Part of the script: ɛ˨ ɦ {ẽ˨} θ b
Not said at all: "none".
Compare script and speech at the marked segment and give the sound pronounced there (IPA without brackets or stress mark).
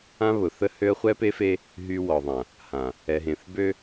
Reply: ẽ˨